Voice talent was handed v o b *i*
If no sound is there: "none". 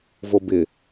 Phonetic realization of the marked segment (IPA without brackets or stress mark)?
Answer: ɪ